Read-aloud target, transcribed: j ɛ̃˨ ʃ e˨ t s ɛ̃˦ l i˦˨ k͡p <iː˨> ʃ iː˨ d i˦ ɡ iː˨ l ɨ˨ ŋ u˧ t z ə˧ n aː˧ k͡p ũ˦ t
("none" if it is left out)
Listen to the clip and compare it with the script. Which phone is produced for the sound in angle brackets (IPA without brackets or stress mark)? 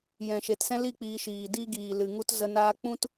iː˧